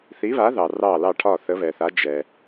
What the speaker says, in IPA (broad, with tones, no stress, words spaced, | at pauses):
θi˨˥βa˨˥ ðɑ˩rɑ˧˩lɑ˧˩ʈʰɒ˧˩ θə˨˥βɛ˩θa˨˥ d͡ʒɛ˩